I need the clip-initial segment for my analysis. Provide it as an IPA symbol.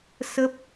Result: s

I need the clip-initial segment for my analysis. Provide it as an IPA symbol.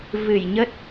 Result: v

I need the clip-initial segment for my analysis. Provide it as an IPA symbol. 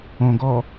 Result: õ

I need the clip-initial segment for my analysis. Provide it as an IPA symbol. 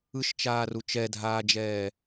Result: ɯ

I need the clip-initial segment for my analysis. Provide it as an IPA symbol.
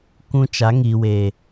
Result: kʷ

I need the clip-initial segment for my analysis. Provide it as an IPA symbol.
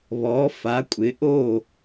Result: β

